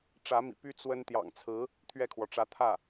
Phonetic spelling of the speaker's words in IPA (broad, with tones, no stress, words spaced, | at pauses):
ʈ͡ʂä˧˥mḭ˨˩py˥ t͡swə˥n t̪jɑ̰˨˩ŋt͡sʰɹ̩˧˥ | t̪ʰɥɛ˥˩kʰwɔ˩ ʈ͡ʂä˧˥t̪ʰä˥˩